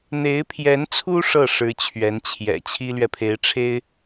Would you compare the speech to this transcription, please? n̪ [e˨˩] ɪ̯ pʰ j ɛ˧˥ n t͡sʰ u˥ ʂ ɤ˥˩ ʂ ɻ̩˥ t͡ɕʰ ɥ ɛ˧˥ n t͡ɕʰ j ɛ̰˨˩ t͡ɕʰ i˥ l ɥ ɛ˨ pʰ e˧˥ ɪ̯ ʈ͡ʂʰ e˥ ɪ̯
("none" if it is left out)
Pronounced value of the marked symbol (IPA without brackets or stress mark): e˧˥